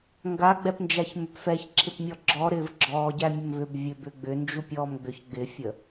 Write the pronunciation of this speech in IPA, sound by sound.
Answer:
ŋ ɡ a ɡ͡b ɛ p n d͡ʒ a ç m ʏ p f ɛ ç ǁʰ ɪ p mʲ ɔ ɡ͡ǁ ɔ ɾ ɪː v ɡ͡ǁ ɔː ɟ æ mʲ ə m v ʏ b vʲ ø b ʏ ɡ͡b ʏ n d͡ʒ u pʲ ɔː m ɡ͡b ʏ ç ɡ͡b ɪ fʲ ə

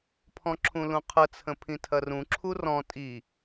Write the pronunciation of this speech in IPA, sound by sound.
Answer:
pʰ ɔ̃ ǁʰ ũ l ũ qʰ ə t͡sʰ ə̃ pʰ ĩ tʰ ɐ r ũ ǁʰ u r ɔ̃ tʼ i

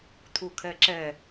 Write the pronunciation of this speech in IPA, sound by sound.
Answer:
t̪ʰ u kʰ ɛ ǁ ɛ

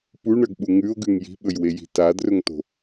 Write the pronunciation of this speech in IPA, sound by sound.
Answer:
p u ɳ ɐ ɡ ɓ u ŋ ʉ o̯ ɡ ʉ ŋ j i̤ ɓ ɵ j w e j i̤ t a d r ɵ ŋ t o̤

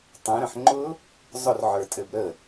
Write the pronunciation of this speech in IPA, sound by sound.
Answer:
tˤ ɛ̃ ɾ ə̃ ħ ŋ͡ǃ ʊ | zˤ ʊ r ʕ ə˞ tʼ ɘ b ɾ ə

